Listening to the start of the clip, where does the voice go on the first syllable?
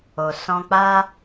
low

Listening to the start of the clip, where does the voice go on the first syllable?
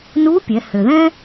rising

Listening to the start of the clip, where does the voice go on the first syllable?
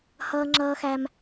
high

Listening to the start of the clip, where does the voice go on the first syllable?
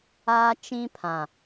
high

